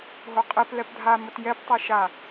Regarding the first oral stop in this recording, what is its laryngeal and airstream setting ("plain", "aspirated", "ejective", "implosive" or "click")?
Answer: ejective